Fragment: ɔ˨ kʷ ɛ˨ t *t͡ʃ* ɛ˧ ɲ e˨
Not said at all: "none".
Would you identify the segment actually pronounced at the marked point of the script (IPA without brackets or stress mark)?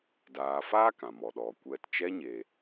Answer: t͡ʃ